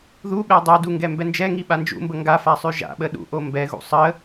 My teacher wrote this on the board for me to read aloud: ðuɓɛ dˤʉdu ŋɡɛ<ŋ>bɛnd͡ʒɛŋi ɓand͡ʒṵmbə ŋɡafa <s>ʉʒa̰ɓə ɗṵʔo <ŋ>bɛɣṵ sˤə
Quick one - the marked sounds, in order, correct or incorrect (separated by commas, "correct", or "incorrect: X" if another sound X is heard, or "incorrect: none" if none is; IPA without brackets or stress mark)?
incorrect: m, incorrect: sˤ, incorrect: m